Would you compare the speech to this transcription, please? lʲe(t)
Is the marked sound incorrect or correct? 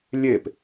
incorrect